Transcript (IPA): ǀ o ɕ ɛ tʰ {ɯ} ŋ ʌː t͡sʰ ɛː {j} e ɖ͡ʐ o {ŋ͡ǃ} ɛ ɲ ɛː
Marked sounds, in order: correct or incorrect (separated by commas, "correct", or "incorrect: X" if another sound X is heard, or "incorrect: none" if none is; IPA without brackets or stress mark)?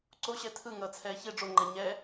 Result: correct, incorrect: ç, correct